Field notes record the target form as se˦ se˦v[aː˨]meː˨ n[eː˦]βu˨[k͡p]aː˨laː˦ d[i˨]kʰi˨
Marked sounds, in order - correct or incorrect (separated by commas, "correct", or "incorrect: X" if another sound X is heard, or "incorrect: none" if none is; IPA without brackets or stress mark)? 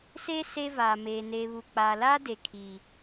correct, incorrect: eː˨, correct, incorrect: e˨